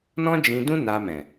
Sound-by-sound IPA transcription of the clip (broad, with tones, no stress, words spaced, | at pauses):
nɔ̃˦d͡ʒĩ˧dũ˦ na˧mɛ̃˨